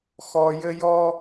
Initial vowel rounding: rounded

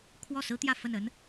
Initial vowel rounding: rounded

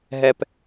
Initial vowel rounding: unrounded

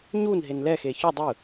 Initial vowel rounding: rounded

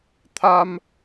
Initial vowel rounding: unrounded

